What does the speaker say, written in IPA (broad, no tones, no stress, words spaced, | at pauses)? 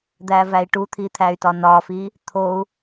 d̪ævæi̯ʈut̪ʰi t̪ʰæy̯tɒnɒfi | t̪ʰou̯